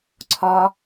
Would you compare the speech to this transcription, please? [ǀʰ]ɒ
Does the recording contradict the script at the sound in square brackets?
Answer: no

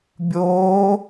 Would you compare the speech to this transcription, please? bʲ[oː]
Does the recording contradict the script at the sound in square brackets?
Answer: no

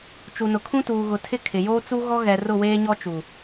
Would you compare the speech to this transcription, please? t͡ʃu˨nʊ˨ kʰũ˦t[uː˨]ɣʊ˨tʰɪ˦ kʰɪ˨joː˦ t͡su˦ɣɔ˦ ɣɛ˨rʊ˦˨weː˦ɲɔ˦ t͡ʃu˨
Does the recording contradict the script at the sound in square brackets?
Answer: no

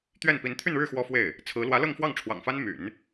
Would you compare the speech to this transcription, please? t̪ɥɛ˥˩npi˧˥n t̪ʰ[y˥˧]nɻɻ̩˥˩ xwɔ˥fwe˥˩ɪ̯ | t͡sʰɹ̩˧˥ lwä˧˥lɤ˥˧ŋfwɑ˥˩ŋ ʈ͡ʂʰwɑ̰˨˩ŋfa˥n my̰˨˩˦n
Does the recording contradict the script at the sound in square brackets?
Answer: no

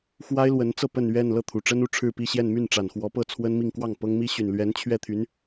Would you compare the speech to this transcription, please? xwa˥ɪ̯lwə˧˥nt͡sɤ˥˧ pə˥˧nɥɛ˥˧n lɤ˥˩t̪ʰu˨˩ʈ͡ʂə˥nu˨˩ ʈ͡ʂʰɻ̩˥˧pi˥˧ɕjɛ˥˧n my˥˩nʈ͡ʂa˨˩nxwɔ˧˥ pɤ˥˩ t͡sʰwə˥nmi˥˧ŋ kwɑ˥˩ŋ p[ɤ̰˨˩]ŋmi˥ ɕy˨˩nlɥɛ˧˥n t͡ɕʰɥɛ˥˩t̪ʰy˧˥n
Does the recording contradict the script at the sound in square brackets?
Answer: yes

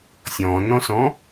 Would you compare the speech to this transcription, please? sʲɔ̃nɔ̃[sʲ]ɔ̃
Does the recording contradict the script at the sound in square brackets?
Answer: yes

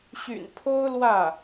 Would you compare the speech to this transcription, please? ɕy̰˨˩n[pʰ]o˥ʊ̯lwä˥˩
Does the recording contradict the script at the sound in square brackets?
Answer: no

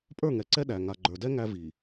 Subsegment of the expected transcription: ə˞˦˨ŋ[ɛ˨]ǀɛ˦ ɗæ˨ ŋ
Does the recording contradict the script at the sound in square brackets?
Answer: no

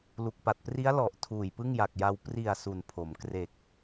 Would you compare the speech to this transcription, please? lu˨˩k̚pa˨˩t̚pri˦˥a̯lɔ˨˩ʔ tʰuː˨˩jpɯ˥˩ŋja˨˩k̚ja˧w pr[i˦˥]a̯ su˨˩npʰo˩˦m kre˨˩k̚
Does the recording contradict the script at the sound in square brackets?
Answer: yes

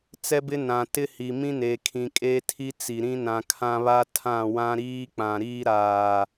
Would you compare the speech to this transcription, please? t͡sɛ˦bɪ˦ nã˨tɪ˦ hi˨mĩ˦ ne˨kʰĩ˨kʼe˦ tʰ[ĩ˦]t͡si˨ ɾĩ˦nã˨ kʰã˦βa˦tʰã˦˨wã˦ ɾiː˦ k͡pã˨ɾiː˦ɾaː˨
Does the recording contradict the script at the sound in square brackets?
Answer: yes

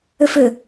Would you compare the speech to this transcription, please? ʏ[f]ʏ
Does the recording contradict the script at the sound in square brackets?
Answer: no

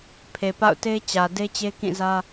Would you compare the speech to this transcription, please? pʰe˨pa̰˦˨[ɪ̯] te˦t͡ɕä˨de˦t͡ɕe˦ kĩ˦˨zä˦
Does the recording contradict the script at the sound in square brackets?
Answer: yes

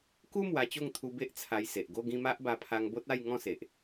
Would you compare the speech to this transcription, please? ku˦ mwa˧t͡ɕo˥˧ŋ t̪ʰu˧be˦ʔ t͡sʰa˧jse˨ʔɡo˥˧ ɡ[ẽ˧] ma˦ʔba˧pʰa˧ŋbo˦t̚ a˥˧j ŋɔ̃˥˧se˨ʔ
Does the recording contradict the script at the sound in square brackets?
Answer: yes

